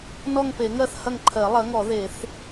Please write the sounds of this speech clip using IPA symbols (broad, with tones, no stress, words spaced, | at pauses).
nɔ˦˨ŋpe˨˩˦ŋɜ˦˨θ hɐ˦˨ŋǃʰɜ˨˩˦ lˠɐ˩˥ŋɔ˨˩˦ðe˨˩˦θ